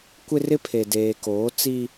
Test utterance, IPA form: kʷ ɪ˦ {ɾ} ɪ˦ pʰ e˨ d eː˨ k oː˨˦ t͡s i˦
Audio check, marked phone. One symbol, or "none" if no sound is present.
r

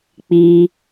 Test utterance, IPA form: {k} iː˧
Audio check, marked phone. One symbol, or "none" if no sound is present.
k͡p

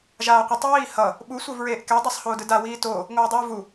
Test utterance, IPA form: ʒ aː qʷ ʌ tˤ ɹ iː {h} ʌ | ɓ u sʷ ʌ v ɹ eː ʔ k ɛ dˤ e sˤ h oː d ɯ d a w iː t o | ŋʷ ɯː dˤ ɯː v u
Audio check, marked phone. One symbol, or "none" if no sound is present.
h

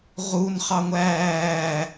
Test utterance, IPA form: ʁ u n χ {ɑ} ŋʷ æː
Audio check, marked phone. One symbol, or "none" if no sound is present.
ɑ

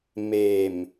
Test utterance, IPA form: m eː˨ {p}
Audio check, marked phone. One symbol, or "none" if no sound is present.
m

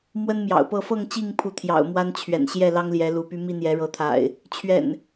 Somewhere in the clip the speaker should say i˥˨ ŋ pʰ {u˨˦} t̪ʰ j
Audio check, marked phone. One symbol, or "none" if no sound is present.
u˨˦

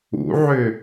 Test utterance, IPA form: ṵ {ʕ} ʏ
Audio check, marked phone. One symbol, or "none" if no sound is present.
ʕ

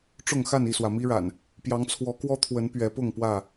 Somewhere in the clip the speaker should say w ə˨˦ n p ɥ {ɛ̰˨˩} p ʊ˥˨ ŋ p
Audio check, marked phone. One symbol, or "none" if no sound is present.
ɛ˨˦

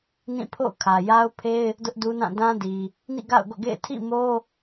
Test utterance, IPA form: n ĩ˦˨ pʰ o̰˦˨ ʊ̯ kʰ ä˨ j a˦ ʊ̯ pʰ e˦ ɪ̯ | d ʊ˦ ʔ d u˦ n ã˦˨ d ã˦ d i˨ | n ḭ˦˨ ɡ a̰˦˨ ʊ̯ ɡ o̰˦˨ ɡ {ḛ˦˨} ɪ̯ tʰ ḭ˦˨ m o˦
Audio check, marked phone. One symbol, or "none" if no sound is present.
ḛ˦˨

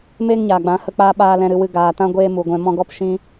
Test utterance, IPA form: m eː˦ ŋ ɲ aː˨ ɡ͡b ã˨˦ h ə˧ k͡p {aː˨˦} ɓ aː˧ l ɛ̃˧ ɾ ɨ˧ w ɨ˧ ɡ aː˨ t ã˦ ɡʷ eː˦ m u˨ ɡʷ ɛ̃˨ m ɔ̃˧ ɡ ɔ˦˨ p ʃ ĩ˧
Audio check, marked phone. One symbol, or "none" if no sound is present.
aː˧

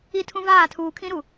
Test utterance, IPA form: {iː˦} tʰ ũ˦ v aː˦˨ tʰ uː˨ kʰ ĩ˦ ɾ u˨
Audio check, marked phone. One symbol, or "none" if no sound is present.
i˦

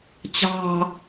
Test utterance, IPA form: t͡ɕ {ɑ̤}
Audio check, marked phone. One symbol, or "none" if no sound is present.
ɑ̤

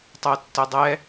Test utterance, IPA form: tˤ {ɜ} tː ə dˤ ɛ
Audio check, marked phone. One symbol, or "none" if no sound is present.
ɜ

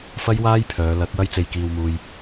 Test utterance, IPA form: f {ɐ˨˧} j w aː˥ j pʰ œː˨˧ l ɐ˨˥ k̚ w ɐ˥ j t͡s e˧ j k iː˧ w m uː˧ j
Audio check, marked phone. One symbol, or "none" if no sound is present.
ɐ˥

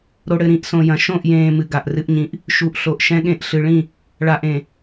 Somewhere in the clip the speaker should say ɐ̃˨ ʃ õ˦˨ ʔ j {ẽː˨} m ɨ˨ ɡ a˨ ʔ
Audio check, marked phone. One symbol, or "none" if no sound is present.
ẽː˨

